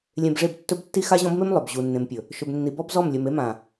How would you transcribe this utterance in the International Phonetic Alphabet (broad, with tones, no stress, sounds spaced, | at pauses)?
lʲ ẽ˨ b ʐ e˦˨ b tː ɵ˦ b tː i˦ x a˦ ʑ ɔ̃˦ b m e˦ m lˠ ɵ˨ b ʑ u˨ nː ẽ˨ m pʲ ɵ˨ | ʃ ɵ˨ b nː i˨ b ɔ˦ b z ɔ˦˨ m lʲ ɵ˨ m e˦ m ã˨